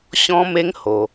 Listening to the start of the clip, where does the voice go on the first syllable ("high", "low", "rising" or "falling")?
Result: high